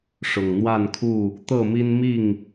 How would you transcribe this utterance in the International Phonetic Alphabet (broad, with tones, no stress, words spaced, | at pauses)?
ʂʊ˨˩ŋn̪wa˥˨nkʰu˥˨ | t̪ɤ˥˨mi˦nmi˥˨ŋ